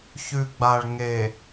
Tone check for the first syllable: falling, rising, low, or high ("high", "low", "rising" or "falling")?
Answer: low